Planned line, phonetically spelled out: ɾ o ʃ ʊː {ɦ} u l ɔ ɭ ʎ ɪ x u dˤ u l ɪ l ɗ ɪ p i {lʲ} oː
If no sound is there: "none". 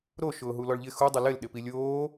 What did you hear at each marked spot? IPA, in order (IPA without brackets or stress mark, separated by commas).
ɦ, lʲ